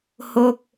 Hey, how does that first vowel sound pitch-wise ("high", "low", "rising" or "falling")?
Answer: falling